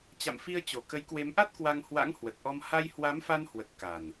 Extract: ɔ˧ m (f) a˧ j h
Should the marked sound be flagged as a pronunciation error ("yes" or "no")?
yes